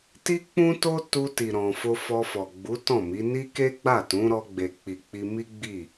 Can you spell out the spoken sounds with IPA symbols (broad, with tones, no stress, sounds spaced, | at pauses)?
t i˦ k͡p ũ˦ t o˦ t u˧ t i˨ ɾ ɔ̃˨ f o˧ f ɔ˧ f ɔ˨ ɡ͡b u˨˦ t ɔ̃˦˨ m i˨˦ n i˦ k e˦ ɡ͡b a˦˨ t ũ˨˦ ɾ ɔ˧ ɡ͡b e˨ k͡p i˨ k͡p i˧ m i˦ ɡ͡b i˦˨